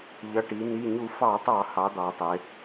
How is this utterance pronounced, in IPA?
ʎ ʌ˩˧˩ ʈ i˩˧ n i˩˧˩ ɲ u˧˩˧ f ɑ˧˩˧ tˤ ɑ˧˩˧ h ɑ˩˧ d̪ ɑ˩˧ tˤ ɪ˩˧

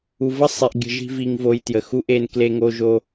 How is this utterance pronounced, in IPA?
u˨ v ə˦ sˤ i˨ ʔ ɡʲ ə̤˨ ʒ i̤˦ v i˦ ŋ v o˦ j t j ə˨ x u˦ ʔ e˦ n k l e˦ ŋ o˦ ʒ o˦

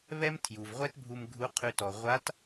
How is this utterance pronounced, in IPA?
β ɛ˥ m tʰ j u˩ v ʁʷ ɛ˥ t bʱ u˧ m ɡʱ u˧˥ qʰ ʉ˧ t ɔ˩ ʁʷ a˧˥ t

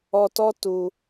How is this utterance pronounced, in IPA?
ɔ˧ t ɔ˦ t u˧

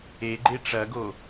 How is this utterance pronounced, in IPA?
e ɡ͡ǃ e ʈ͡ʂ ɐ ɡ o

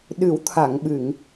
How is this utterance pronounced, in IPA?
ɗ ɨ˨˩˦ w t̪ʰ a˨˩˨ ŋ ɓ ɨ˨˩˨ ŋ

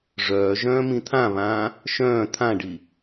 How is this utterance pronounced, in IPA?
ʐ œː ʒ œ̃ː m ĩ t̪ʰ ã β ãː | ʃ œ̃ː t̪ʰ ã ɖ i

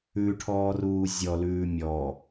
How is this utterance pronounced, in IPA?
ʉ ʈʰ ɔː r uː zʲ ɔ l ʉː mʲ ɔ

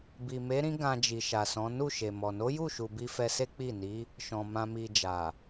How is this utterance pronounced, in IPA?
b i˨ m e˨˦ ɾ ĩ˦ ɡ ã˧ d͡ʒ i˨ ʃ a˨ s ɔ̃˨˦ n u˦˨ ʃ e˨ m ɔ˨ n o˨˦ j u˦˨ ʃ u˨ b i˧ f ɛ˧ s e˦ k͡p i˦˨ n i˨˦ | ʃ ɔ̃˨ m ã˧ m i˧ d͡ʒ a˨

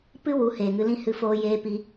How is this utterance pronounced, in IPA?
p ɨ˦ w u˨˦ h eː˨ ŋ ɨ˧ l ĩ˦ h ɨ˧ f oː˧ j eː˧ p i˧

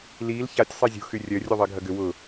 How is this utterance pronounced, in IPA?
l iː l ç a tʲ sˤ e zʲ ṳ x y rʲ œ rʲ u ðˤ ɪː ɡʱ ɐ ɡ ʏ w ʊ

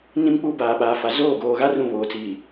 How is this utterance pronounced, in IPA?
n ĩ˦ m k͡p u˦ b aː˨ ɓ aː˨ f a˨ z oː˦˨ ɡ oː˨ ɣ a˦ r ũ˦˨ β oː˨ t͡s iː˨

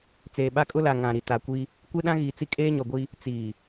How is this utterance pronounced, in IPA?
t͡s eː˨ ɓ a˦ kʼ ʊ˦ l a˨ ŋ ã˨ ɾ i˨ t a˨ kʷ i˦ | kʷ e˦ ɗ ã˦ ɣ iː˨ t͡s i˦ kʼ eː˦ ɲ ɔ˨ ɡʷ i˦ | t͡s iː˨

